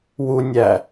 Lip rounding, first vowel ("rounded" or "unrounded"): rounded